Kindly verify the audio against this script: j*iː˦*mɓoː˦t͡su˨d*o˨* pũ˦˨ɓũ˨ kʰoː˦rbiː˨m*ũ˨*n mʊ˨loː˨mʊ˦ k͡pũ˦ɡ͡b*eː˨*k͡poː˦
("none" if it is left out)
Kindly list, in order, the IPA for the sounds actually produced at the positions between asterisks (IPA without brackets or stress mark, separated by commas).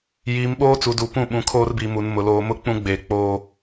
iː˨˦, u˨, u˨, eː˨